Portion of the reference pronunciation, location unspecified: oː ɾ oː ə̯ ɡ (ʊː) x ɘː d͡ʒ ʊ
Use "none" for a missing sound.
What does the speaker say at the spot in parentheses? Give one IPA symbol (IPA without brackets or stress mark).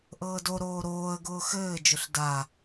ʊː